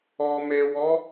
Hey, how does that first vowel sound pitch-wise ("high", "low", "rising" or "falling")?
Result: low